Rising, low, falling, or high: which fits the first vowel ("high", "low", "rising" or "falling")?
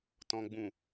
low